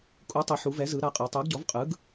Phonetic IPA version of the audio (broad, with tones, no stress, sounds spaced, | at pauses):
kʼ u˩˥ tˤ ɯ˩˧ ħ u˩˧ v ɛ˩˥ z ɯ˩˧ ɾ a˩˥ qʼ ɤ˩˧ tˤ o˩˥ ɡ ɟ ɔ˩˥ v qʼ ɯ˩˥ ɡ